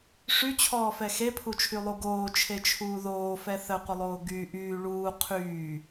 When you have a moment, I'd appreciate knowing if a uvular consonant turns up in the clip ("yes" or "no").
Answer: yes